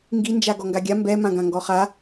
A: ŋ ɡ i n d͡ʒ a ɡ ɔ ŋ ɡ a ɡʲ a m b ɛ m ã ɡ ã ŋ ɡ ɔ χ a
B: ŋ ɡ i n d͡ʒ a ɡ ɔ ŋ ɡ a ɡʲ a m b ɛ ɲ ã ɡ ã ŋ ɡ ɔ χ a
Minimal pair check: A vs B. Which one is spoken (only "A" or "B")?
A